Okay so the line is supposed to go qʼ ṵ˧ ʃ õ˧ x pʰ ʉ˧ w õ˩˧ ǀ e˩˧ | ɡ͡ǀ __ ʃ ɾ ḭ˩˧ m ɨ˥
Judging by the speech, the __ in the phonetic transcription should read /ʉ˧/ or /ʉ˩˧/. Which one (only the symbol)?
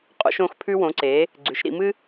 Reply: ʉ˩˧